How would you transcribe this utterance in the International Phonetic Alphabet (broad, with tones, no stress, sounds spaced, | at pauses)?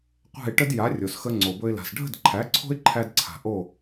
qʷ æ̤˥˩ ɪ̯ ʈ ə˥ d j a˩˥ rʲ o˩ s x ə˧ ŋ͡ǀ o˩ b ɵ˧ ɪ̯ l a̤˩ s ɖʱ ə̤˥˩ d ǃʰ æ˩˥ ǀʰ o̤˥ ɪ̯ ǃʰ æ˧ d ǀʰ a̤˩ ʔ o˥˩